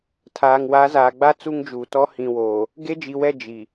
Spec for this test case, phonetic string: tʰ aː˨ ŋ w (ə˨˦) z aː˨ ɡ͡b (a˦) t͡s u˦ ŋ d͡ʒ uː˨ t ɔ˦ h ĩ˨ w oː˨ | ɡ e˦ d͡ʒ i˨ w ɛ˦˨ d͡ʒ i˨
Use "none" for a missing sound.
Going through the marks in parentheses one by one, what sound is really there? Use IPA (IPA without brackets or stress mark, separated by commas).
a˨˦, a˦